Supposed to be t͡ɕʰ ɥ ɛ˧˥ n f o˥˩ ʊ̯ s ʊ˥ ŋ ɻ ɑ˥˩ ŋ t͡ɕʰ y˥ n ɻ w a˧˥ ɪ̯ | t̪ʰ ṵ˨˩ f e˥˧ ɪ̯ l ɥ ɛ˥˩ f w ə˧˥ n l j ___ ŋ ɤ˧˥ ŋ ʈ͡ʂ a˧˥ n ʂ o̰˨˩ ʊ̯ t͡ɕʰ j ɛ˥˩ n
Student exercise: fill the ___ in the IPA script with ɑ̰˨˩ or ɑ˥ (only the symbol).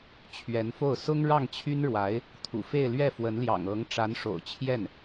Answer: ɑ̰˨˩